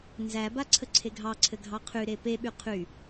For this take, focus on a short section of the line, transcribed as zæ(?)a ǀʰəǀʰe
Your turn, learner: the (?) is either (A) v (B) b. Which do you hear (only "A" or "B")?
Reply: B